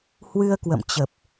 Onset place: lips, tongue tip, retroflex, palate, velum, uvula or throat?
throat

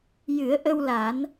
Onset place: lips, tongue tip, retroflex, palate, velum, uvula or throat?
palate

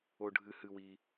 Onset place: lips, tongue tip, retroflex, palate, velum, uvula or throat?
retroflex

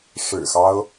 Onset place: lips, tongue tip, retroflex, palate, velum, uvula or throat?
retroflex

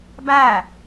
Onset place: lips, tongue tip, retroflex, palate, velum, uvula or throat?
lips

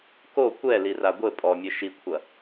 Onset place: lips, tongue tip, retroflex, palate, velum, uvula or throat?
velum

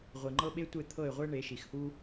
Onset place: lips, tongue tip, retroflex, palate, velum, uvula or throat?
uvula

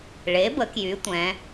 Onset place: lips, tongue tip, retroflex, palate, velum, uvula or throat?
retroflex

